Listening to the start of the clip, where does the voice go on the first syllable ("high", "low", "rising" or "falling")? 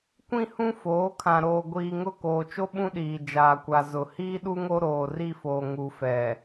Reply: high